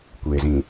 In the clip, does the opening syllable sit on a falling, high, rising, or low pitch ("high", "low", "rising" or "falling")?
low